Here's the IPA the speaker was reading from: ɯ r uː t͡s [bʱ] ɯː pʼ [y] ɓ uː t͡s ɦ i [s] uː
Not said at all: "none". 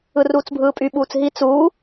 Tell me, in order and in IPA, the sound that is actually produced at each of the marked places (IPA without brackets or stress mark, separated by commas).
bʱ, y, t͡s